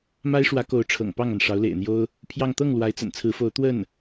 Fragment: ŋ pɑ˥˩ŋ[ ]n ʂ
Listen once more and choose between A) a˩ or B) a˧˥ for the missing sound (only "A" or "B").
A